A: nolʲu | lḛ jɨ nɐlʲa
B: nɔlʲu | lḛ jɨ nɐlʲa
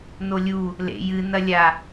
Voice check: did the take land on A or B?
A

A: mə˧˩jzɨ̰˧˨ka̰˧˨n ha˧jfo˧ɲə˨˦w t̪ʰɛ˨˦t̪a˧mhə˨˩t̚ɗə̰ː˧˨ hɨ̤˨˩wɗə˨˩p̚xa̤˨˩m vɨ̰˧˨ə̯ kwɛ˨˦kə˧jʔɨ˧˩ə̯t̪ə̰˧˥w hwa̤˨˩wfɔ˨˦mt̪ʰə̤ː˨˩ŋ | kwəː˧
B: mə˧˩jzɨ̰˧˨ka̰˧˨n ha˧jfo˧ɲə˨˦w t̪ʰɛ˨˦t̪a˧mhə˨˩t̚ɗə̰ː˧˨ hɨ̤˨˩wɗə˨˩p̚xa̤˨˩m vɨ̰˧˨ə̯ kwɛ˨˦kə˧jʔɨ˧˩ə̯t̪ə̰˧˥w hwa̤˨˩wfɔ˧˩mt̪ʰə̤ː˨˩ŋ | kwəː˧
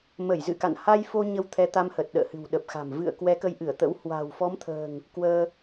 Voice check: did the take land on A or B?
A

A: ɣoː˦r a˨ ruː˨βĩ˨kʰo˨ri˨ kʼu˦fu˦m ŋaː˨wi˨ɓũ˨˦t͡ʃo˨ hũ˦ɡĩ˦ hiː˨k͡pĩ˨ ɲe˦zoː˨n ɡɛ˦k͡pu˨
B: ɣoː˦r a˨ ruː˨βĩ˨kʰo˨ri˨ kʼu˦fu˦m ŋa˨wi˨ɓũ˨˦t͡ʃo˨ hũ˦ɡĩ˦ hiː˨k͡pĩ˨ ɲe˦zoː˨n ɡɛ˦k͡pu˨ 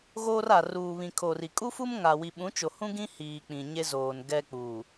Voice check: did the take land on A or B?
B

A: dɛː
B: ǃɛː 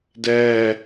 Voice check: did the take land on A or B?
A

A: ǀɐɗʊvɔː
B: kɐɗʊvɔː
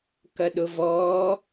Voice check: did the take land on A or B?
B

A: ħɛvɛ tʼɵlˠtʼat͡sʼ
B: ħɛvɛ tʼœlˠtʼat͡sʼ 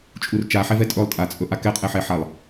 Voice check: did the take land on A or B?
A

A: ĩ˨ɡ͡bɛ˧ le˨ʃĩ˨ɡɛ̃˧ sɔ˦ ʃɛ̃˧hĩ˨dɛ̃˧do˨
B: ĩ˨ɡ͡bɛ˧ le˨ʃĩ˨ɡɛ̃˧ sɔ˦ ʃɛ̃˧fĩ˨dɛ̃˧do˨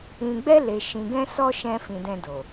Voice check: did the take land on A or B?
B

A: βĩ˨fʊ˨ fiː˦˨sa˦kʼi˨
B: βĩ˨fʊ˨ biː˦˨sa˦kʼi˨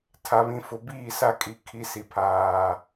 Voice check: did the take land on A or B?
B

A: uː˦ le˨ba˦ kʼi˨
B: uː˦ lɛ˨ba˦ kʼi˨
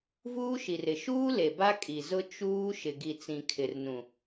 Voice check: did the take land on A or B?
A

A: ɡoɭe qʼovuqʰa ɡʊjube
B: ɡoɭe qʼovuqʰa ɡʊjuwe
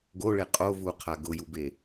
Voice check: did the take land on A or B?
A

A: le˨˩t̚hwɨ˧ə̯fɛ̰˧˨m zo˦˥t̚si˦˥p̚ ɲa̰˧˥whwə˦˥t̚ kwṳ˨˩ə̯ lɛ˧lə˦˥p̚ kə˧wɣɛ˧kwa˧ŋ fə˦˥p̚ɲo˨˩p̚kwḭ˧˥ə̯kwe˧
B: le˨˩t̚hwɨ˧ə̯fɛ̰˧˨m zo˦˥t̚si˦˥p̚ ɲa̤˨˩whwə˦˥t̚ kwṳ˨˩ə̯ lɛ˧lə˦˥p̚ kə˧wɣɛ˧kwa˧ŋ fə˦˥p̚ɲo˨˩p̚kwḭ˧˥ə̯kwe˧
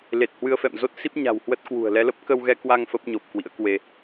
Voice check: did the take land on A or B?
B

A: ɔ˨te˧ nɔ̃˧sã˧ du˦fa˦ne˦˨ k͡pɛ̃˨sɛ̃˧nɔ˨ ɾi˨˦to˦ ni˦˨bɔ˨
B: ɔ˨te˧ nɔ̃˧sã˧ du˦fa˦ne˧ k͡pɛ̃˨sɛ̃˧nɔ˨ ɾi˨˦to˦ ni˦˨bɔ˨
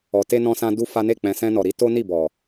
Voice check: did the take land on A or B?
A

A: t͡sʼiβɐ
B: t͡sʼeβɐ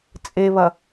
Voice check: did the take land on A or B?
B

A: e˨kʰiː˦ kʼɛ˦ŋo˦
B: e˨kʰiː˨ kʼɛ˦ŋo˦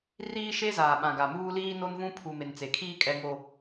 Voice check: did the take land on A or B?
A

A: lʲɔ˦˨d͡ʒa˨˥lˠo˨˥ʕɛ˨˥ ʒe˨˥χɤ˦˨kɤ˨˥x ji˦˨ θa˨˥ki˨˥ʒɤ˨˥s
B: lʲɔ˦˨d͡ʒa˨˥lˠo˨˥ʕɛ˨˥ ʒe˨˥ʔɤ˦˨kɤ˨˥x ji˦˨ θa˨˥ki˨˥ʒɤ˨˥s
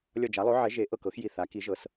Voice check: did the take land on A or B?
B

